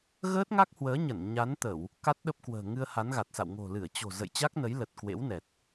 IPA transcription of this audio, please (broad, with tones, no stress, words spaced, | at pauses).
ɣəː˦˥t̚ŋa˦˥k̚hwəː˨˦ɲə˧˩n ɲa˨˦nt̪ə˧˩˨w | ka˦˥t̚ɗə˦˥p̚kwə̤ː˨˩ ŋɨ˧ə̯ha˨˦nɣa˨˩t̚sa̰˧˨w ŋo̤˨˩lɨ˧˩ə̯t͡ɕo̤˨˩ zə̰˧˨jt͡ɕa˦˥k̚nə˨˦jlə˨˩t̚ kwḛ˧˥wnɛ˨˩t̚